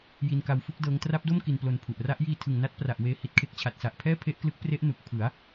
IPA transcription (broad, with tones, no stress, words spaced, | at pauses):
ji˧nka˧wfu˥˩k̚dɤː˦˥ŋ tra˦˥p̚do˥˩m ki˧nplo˧npʰu˨˩ʔ ra˦˥ʔ jiː˧tʰɯ˨˩ŋna˦˥t̚ pra˨˩ʔweː˧ hi˦˥t̚kʰe˦˥k̚ t͡ɕʰa˨˩t̚sa˨˩ʔ pʰɛː˥˩pʰe˦˥ʔklɯ˦˥k̚pre˦˥ʔ nu˨˩k̚pʰɯ˩˦a̯